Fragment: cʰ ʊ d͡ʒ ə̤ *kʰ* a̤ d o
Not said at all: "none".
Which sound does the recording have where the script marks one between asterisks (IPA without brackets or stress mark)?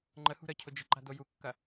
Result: ǃ